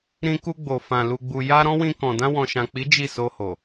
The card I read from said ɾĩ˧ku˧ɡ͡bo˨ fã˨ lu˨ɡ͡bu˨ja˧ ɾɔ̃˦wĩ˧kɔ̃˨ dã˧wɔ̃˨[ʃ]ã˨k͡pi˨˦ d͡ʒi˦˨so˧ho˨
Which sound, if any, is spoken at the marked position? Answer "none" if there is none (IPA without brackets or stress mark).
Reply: ʃ